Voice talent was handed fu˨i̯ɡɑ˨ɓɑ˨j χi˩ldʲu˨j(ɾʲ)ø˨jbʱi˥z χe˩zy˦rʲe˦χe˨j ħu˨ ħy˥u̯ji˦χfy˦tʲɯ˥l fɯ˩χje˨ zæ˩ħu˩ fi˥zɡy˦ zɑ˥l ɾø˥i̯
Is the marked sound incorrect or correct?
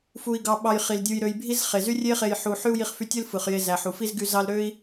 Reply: incorrect